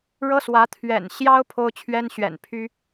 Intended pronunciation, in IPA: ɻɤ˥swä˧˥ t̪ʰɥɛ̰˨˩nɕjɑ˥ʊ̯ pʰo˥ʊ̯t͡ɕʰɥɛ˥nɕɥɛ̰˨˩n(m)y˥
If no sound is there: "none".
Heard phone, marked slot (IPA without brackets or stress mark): pʰ